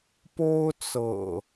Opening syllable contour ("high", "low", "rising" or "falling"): high